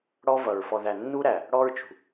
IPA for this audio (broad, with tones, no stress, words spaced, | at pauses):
ɽɔ˦vʌ˨ɹ fɔ˨ðæ˨ nːu˦ɾæ˨ | ɽɔ˦ɹt͡ʃṳ˨